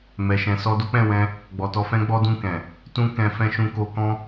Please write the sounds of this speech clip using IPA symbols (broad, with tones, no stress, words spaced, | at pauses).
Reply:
mɛ˨ʃɛ̃˨ sɔ˧do˦k͡pɛ̃˦˨wɛ̃˧ | ɡ͡bɔ˨tɔ˧fɛ̃˦ ɡ͡bɔ˦dũ˦˨kɛ̃˨ | tũ˦ kɛ̃˧fɛ̃˦ ʃũ˧ko˧kɔ̃˦